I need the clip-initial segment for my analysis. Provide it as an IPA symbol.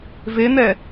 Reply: v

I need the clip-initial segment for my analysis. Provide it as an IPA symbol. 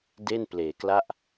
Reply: d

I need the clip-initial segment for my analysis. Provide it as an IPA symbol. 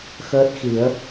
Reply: x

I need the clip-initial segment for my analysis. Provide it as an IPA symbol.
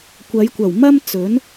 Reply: kʷ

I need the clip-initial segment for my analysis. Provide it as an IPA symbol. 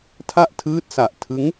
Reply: tʰ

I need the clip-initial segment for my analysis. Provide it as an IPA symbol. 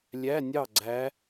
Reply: lʲ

